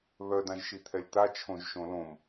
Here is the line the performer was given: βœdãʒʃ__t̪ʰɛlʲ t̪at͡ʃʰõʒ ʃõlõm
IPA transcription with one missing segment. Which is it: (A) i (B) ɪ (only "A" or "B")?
A